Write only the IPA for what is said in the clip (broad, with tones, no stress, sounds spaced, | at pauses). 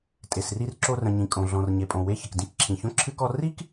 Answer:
tʼ e˨ s r i˦ r ǁ o˦ r ə̃˨ ɲ ĩ˨ kʼ õ˨ ɮ ɔ̃˨ r ɲ e˨ pʼ õ˨ w e˦ ç ə˨ k d ĩ˦ k ǁʰ ĩ˨ ç õ˥ ǁʰ ɨ˥ k ɔ˥ r i˥ k